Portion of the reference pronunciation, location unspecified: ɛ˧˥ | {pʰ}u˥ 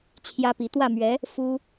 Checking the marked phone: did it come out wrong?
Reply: yes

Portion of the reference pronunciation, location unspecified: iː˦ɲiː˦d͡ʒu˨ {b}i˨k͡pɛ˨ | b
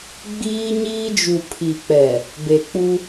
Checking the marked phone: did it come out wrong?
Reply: yes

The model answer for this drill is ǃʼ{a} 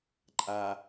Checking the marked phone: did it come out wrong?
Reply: no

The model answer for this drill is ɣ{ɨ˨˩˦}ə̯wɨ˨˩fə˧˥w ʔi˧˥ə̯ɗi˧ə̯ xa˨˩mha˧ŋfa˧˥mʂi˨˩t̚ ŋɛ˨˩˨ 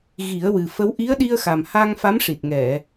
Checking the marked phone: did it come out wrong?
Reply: yes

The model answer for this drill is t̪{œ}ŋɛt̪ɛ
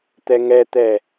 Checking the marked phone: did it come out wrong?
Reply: yes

